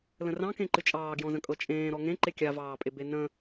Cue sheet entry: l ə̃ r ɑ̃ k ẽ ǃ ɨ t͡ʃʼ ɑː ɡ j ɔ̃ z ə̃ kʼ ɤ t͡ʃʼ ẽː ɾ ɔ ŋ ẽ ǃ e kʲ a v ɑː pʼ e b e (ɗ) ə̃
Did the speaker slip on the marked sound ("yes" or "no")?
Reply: yes